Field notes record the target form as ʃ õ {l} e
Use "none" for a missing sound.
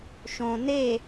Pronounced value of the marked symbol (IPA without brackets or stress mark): n